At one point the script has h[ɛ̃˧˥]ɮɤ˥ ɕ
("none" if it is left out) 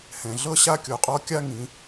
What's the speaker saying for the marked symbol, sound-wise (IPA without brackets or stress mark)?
ɛ̃˩